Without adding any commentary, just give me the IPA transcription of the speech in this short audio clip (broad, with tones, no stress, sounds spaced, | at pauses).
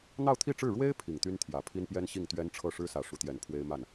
n̪ ɑ˥˧ ʊ̯ t̪ʰ i˥˧ ʈ͡ʂ ɻ̩˥˩ ɻ w e˥ ɪ̯ pʰ i˨˩ ŋ t̪ y˥ n t̪ʰ j ä˨˩ pʰ i˥ n p j ɛ˥ n ɕ i˥˩ ŋ t̪ ɥ ɛ˥ n ʈ͡ʂʰ ɤ˥˩ ʂ ɻ̩˥ s ä˨˩ ʂ u˧˥ t̪ j ɛ˧˥ n pʰ w e˥ ɪ̯ m a˥˩ n